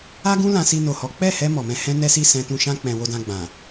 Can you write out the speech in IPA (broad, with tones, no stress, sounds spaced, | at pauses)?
a˦ ɡ ũ˦ l ã˧ s i˧ n o˨ h ɔ˨˦ k͡p ɛ˦˨ h ɛ˧ m ɔ˨ m ɛ̃˧ h ɛ̃˦ n ɛ˦ s i˦˨ s ɛ̃˧ t ũ˧ ʃ ã˦ k͡p ɛ̃˧ w o˧ d ã˧ ɡ͡b ã˨